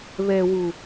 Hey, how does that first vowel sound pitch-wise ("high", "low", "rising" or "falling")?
low